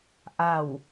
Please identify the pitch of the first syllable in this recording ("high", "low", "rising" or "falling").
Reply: falling